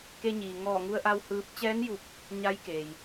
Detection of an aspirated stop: absent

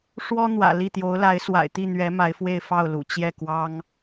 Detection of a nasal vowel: absent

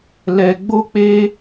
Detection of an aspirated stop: absent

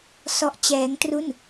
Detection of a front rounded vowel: absent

